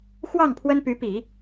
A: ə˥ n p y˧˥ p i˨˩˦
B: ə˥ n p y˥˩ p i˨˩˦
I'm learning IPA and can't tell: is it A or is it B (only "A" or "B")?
A